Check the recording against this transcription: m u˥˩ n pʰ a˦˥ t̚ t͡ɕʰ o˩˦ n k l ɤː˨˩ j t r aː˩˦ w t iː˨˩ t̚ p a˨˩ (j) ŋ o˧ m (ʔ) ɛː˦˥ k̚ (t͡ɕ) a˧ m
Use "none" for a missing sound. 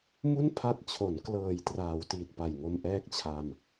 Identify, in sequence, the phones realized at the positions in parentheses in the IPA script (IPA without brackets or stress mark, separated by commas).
j, ʔ, t͡ɕʰ